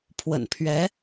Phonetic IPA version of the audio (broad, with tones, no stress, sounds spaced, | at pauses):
pʰ w ə̰˨˩ n pʰ ɥ ɛ˧˥